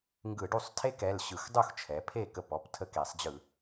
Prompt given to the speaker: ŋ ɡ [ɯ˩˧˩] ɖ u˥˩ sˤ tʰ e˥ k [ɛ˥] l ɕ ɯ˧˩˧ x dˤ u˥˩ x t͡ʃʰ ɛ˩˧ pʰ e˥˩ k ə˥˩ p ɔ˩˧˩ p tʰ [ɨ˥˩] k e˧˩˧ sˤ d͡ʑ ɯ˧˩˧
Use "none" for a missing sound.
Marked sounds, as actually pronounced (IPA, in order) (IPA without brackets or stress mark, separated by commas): ɯ˧˩˧, ɛ˩˧˩, ə˥˩